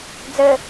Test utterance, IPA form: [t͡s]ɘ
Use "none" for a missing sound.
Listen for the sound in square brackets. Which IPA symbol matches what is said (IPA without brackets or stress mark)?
d͡z